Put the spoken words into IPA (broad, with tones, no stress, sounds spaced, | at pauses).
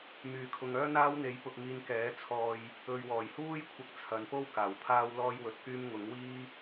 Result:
m yː˨˩ kʰ ʊ˨ ŋ œː˥ n̪ aː˥ w n̪ e˨˥ j p ʊ˨ k̚ ŋ iː˨ n k ɛː˨˥ t͡sʰ ɔː˧ j | ɵ˨ ɥ w ɔː˨˩ j h uː˥ j kʷʰ ɐ˨ k̚ t͡sʰ ɐ˨˥ n p o˥ w k aː˨˩ w pʰ aː˥ w l ɔː˥ j w ɵ˧ t̚ k yː˥ m ŋ ʊ˨˥ ŋ w iː˥